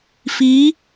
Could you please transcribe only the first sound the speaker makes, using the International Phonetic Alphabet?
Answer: f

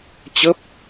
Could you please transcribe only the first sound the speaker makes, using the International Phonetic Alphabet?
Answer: t͡ɕ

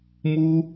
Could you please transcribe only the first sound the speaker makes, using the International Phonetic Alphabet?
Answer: m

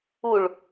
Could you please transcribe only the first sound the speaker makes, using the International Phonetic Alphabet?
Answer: u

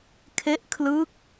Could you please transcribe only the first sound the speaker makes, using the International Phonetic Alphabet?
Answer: kʰ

